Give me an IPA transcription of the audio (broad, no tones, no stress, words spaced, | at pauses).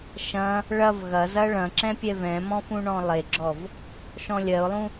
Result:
ʃɐ̃ | ɭɐv ɣɐ zɐɭɐ̃ǁɛ̃ pʲɛvɛ̃mɔ̃fũ ɳɔ̃lˠeɡ͡ǁɔv | ʃɔ̃lʲɜʊ̯lˠũ